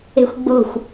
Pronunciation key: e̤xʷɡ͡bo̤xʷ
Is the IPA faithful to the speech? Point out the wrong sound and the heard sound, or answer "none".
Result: none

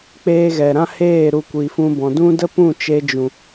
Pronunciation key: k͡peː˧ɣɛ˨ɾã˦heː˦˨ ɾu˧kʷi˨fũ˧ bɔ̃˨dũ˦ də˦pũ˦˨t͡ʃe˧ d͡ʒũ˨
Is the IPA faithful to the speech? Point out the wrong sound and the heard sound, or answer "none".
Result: none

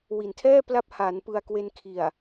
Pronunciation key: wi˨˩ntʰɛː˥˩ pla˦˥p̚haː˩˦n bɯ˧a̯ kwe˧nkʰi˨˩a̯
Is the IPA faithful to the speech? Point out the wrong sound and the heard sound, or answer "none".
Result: b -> p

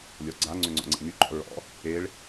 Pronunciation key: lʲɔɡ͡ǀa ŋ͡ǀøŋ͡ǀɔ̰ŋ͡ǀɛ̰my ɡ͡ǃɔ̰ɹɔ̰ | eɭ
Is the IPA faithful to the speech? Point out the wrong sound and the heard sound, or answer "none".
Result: none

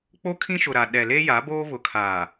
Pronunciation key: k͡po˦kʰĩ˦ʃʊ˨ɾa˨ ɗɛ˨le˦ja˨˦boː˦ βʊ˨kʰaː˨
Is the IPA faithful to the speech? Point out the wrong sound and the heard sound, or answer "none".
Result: none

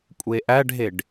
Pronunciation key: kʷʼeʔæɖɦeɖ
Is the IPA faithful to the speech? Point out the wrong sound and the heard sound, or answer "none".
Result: none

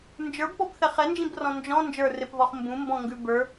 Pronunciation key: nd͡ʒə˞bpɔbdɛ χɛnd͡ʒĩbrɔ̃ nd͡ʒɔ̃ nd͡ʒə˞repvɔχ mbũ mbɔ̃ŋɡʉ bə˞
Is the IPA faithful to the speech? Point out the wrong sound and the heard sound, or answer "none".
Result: d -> θ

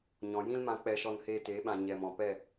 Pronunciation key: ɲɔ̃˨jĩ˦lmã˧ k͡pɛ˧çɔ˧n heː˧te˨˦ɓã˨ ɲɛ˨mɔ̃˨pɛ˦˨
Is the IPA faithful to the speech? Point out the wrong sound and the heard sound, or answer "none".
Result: ç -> ʃ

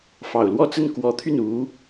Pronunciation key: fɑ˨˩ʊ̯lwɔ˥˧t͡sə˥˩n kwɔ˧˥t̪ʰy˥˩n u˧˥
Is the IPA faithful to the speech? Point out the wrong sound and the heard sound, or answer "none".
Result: none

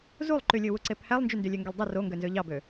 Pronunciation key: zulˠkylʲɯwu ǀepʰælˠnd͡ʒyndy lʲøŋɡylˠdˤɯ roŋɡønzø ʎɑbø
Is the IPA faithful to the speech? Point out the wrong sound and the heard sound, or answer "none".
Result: k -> ǃ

